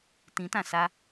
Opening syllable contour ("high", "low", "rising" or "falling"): rising